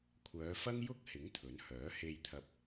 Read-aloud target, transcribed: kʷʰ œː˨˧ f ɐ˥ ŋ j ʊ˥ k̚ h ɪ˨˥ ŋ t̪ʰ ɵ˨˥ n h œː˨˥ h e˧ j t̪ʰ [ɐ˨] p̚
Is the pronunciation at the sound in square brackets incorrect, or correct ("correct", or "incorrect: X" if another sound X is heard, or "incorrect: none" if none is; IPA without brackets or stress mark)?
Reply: incorrect: ɐ˧